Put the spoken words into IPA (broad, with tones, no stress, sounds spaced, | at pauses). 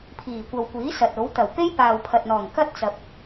pʰ iː˨˩ kʷ ɐ˨ w kʷ iː˨˥ s ɐ˨ t̚ o˨˥ w t̪ ɐ˨˩ w p e˥ j p aː˨ w pʰ ɐ˨ t̚ n̪ ɔː˨˩ ŋ k ɐ˥ t̚ t͡s ɐ˨ p̚